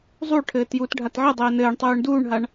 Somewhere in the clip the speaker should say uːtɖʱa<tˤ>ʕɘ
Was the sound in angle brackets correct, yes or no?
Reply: no